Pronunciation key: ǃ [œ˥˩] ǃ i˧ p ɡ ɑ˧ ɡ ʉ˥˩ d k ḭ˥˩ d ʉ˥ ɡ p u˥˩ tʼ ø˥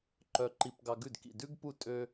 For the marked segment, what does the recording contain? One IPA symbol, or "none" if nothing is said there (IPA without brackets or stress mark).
œ˧